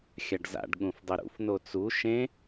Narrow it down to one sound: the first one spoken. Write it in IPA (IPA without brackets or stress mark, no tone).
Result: xʲ